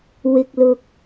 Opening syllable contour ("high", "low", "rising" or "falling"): low